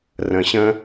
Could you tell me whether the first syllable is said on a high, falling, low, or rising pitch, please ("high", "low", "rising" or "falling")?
low